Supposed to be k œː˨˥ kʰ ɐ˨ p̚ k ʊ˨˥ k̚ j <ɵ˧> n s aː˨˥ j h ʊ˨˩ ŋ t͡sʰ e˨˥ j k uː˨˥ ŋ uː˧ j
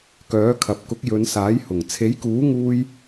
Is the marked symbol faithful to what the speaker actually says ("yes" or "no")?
no